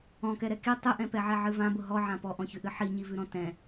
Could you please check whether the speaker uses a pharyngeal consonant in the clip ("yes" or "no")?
yes